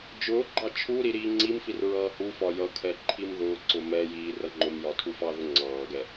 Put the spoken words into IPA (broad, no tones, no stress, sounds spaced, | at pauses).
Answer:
d͡ʒ ʊː ɡ͡ǃ ɑ t͡ʃʰ u ɾ i ɾ iː ŋ͡ǀ i m f i r ɹ ʌː h u f ɒ j ʌ kʰ ɛ ǃʰ i m ð ʊː ǀ ʊ m ɛ j iː r ʌ ŋ͡ǃ ʊ m j ɒ tʰ u f ɑ ð ʊ ŋ͡ǀ ɑː ɡ ɛ